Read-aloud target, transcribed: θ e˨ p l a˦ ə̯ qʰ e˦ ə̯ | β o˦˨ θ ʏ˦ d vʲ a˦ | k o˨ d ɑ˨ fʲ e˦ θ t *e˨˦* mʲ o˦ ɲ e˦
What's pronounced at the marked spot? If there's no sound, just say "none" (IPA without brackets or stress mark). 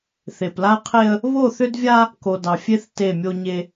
e˦˨